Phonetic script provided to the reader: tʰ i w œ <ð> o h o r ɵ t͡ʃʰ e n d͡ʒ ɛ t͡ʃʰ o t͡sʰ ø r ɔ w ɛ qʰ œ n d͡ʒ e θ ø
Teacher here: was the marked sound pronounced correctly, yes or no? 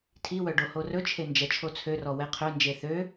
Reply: no